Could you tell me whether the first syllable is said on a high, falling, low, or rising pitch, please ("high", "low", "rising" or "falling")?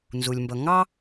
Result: low